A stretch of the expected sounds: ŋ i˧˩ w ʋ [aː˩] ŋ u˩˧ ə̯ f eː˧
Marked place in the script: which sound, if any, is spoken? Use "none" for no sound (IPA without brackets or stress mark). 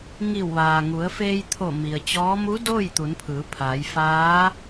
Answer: aː˩